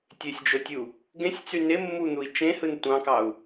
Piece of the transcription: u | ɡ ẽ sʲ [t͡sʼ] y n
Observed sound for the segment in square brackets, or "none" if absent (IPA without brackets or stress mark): t͡s